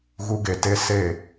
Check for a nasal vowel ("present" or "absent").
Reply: absent